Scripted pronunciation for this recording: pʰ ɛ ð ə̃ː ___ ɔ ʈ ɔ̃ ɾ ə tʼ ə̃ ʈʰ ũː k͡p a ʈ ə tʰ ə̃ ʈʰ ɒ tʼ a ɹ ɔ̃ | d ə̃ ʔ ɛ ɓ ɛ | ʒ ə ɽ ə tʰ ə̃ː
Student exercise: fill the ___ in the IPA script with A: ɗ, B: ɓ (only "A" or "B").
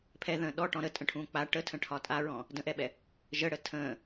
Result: A